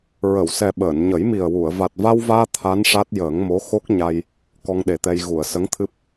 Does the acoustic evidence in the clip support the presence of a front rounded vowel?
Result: no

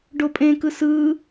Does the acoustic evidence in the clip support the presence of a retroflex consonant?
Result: yes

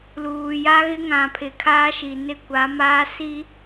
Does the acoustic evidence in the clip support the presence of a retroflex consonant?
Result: no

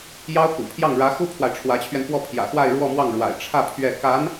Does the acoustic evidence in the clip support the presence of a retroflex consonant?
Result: yes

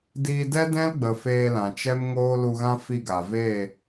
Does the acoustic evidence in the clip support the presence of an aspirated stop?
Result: no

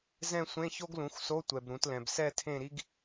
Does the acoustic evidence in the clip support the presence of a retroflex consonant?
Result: no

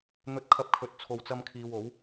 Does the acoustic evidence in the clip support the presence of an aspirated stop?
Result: yes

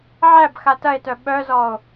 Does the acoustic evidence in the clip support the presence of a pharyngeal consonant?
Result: yes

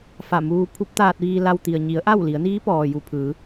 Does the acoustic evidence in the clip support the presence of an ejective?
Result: no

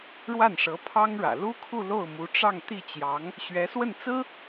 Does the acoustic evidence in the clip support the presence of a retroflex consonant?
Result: yes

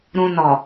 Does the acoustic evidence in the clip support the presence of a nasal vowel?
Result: yes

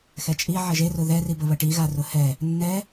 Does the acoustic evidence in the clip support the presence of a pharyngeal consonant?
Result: yes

